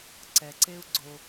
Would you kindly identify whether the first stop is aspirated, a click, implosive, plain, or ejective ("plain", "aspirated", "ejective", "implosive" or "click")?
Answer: click